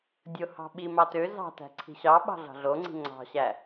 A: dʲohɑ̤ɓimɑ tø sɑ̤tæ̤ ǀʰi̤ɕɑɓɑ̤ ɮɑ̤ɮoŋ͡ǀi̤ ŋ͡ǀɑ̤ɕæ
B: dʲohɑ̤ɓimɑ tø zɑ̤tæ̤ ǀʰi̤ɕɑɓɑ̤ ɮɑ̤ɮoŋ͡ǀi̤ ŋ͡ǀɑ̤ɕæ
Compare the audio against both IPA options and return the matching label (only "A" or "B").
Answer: B